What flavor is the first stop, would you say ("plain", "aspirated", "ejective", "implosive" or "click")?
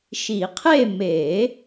aspirated